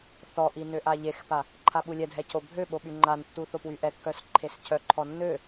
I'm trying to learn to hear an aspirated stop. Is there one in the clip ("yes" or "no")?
yes